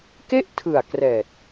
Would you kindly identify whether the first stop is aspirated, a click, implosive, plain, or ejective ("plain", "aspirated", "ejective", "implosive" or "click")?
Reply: plain